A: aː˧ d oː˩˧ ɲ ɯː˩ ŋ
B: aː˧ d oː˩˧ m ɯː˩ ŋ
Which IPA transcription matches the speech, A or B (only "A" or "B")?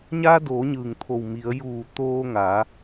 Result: A